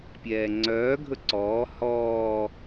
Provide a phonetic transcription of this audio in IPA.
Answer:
pʲɛːŋ͡ǀœː ɡʱɵǀɔː hɔː

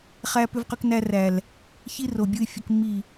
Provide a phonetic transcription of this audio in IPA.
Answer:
χæ˦ pʏ˦vqʏ˦knæ˦ ræ˨l | çi˦ ro˨bʲɯ˦ɪ̯ fʲə˦kmːi˦˨

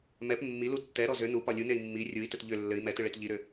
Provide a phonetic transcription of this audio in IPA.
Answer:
mɛp mːilu tːɛɾɔ zʏ nupɒ lʲunei̯ mːi rʲui̯tɘt ʎʏ lːɘi̯ mɛtɨɭet ʎiɾʏ

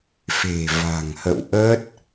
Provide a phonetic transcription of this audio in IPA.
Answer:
fe̤˨˩ va̤˨˩ŋhə̰˧˨wʔəː˦˥t̚

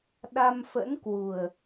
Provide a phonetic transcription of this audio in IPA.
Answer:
ɗa˧m fə̰˧˥nkwu˨˩ə̯

